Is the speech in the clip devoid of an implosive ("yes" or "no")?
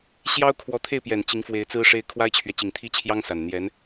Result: yes